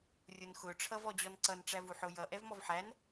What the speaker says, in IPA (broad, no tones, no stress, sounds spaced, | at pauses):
rʲ ʊ n x ʊ ʈ͡ʂʰ ʌ v ɔ d͡ʑ ɔ n ǀ ʌ n ʈ͡ʂ æ v u ħ ʊ j ʌ ʔ ɛ v m ɔ v ħ æ n